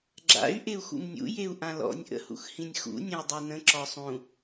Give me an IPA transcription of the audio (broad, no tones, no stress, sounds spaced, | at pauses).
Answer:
ɡ͡ǁ a̰ y̯ ʔ e u̯ x ṵ m nʲ ṵ j e u̯ ʔ ã l ɔ̰ nʲ ʔ ə̰ h ṵ x h ĩ nʲ x ṵ nʲ ɐ̃ u̯ dˤ e n ə̃ ǁ ɔ sˤ ũ